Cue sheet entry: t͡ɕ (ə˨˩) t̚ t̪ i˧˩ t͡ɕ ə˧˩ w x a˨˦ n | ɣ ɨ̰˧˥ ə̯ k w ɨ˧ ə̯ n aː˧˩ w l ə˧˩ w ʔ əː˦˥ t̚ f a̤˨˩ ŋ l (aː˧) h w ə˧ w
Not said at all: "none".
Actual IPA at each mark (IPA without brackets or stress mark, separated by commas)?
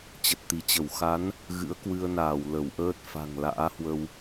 ə˨˩, a̰ː˧˥